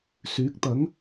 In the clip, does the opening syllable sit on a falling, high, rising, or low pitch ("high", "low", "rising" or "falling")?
rising